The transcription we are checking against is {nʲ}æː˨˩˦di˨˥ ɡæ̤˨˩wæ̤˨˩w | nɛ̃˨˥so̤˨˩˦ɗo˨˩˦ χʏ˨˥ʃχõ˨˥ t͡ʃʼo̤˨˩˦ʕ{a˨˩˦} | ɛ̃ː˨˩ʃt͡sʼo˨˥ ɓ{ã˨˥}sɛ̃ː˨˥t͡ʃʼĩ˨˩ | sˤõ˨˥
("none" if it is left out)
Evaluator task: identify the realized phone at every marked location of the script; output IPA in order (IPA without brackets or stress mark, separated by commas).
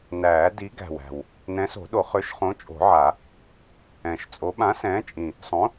n, a˨˩˦, ã˨˥